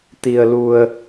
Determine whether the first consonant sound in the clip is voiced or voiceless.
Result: voiceless